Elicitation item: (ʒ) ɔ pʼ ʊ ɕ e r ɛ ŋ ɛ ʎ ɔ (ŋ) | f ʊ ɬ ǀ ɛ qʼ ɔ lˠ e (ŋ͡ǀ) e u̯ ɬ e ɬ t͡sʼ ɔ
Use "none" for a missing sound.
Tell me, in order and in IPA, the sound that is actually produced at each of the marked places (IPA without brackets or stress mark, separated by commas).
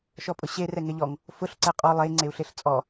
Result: ʃ, ŋ, ŋ͡ǀ